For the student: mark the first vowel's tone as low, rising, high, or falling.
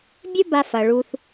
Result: high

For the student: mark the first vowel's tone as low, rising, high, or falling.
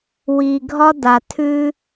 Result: low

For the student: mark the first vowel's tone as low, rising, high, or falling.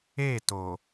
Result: falling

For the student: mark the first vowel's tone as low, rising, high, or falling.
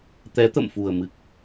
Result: rising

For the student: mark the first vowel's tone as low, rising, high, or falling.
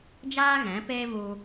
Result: high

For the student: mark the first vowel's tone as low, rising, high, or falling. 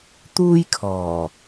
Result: high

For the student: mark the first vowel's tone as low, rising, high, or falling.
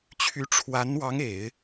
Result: rising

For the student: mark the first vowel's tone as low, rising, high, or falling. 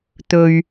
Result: low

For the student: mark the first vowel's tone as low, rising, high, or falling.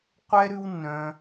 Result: high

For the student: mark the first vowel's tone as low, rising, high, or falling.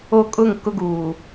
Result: high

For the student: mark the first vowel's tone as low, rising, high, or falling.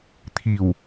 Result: low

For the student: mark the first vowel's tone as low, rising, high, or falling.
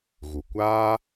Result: low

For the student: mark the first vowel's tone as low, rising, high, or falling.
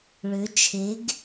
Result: rising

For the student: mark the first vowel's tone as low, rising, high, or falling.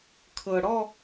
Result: low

